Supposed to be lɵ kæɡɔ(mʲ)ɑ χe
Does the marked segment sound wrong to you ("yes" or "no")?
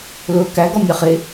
no